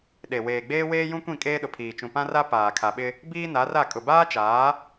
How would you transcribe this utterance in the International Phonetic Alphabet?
ɗe˨ weː˨ɡ͡beː˦ weː˦jũ˦kʷĩ˦˨ kʼeː˦ɗʊ˨pʰiː˨ t͡ʃũ˨pã˦ra˦ paː˨kʰa˨ɓɪ˦ | biː˦na˨˦ra˦˨kʼʊ˨ baː˦t͡ʃaː˨˦

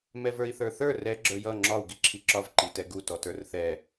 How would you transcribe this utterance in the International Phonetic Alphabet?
mɛvə˞i̯θə˞θə˞ rɛ ɡ͡ǁə˞jʌ ŋ͡ǁɒu̯ ɡiǁʰiǁɒv ǃitɛɡu tɔtə˞rθɛ

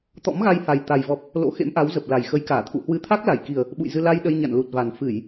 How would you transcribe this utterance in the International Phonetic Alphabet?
t̪ɔ̰˧˥mɣa˧jha˨˩j t̪a˨˩jvɔ˨˩p̚ | lo̰˧˥xḛ˧˥mʔa˨˦wzə˨˩p̚ la˨˩jxə˨˦jkaː˧˩t̪ʰṵ˧˨ hwɨ˨˦t̪ʰa˦˥k̚la˧˩jki˨˩ə̯ | ɓṵ˧˨jzɨ˧ la˧j ɗə˧j ɲa̰˧˨nlu˨˩t̚va˨˩n fɨ˧˩˨j

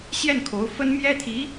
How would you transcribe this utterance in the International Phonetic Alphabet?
ɕjɛ˥˩nkʰo˧˥ʊ̯ fə˥n mjɛ˥t̪ʰi˧˥

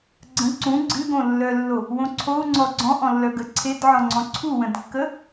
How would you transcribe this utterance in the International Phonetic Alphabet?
ɡ͡ǀə̃ ǀũ ɡ͡ǀɨɡõlːœlːo | wõǀʰou̯ ŋ͡ǀɔɡ͡ǀɔ̃ʔɔ̃lːœ ɡəǀʰedʕɔ̃ŋ͡ǀɔ̃ ǀʰuwə̃dkːə

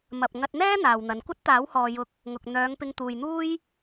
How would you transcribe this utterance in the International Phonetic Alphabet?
mɐ˨p̚ ŋɐ˧t̚n̪ɛː˥ n̪aː˨wn̪ɐ˨n kʷɐ˥t̚t̪aː˨˥whɔː˨jʊ˧k̚ | ŋʊ˨k̚ n̪œː˨˧ŋpɪ˧ŋ t̪uː˨jn̪uː˥j

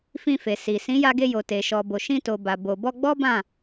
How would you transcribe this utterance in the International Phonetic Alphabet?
fĩ˧fe˨si˨ sĩ˨˦ja˧ɡe˧ jo˨ te˨ʃɔ˨bo˨ ʃĩ˧to˨ba˨ bo˨bɔ˧ɡ͡bɔ˦ bã˦˨

